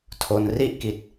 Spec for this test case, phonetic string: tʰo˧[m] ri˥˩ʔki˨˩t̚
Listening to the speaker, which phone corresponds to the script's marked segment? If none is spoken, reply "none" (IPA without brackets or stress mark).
n